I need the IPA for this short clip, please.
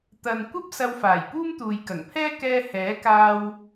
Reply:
t̪ ɐ˨ n kʷ ɐ˥ p̚ s ɐ˧ w f aː˨˩ j p uː˥ m t̪ uː˨ j k ɐ˨˩ ŋ pʰ ɛː˥ k ɛː˧ h ɛː˨˥ k aː˧ w

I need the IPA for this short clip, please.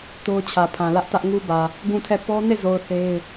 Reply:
t o˦ ʊ̯ t͡ɕʰ ä˨ pʰ ã˨ l ä˦ ʔ t ä˦ ʔ ŋ u˦ b ä˨ | ɡ ũ˦˨ tʰ ɛ˦˨ p ɔ˦ n e˦˨ z o˨ ʊ̯ θ e˦ ɪ̯

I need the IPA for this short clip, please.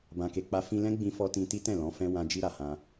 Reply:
b ã˧ k e˧ k͡p a˦ f ĩ˧ l ɛ̃˦ ɡ͡b ĩ˧ f ɔ˧ t ĩ˧ t i˦ t ɛ̃˦˨ l ɔ̃˨˦ f ɛ̃˦ w ã˦ d͡ʒ i˧ ɾ a˨ h ã˧

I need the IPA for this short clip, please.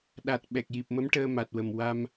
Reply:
ɗ a˨˩ t̚ ɓ ɛ˨˩ k̚ j i˨˩ p̚ m ə˧˥ m ʈ əː˧ m a˨˩ t̚ w ə˨˩ m w a˧ m

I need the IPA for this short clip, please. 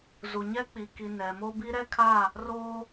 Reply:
z u˨ ɲ ɛ˦ k͡p i˨ k i˨ n ɛ˨ m o˦ b i˦ ɾ ɛ˦ kʰ a˦˨ | r oː˦

